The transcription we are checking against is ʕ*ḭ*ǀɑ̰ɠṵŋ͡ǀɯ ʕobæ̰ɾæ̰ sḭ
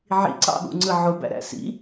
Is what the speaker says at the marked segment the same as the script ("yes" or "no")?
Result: yes